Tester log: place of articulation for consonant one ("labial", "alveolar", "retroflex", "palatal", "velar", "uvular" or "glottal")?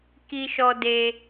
velar